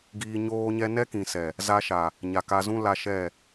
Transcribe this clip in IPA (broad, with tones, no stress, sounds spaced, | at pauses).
ɡ iː˧ ɲ oː˦ ɲ ɛ˦ n ɛ˦ k ĩ˨ s ɛ˨ | z a˧ ʃ a˨ | ɲ a˨ k a˧ z ũ˦ l a˧ ʃ ɛ˦˨